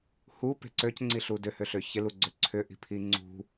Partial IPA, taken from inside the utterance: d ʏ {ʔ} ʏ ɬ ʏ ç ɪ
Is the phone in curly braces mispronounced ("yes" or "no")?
yes